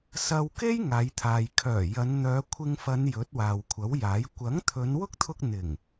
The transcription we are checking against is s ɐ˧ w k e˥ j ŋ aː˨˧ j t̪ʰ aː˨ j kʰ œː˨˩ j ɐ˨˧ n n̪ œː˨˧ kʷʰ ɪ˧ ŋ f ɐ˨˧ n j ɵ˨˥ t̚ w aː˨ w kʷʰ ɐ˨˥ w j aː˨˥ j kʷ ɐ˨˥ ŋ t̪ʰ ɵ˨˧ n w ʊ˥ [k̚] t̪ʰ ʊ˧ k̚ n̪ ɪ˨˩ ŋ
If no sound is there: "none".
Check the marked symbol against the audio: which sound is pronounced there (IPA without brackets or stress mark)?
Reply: k̚